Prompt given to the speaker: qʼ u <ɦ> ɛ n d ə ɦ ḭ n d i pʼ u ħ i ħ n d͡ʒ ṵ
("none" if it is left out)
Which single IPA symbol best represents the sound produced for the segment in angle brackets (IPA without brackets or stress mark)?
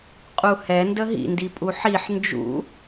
h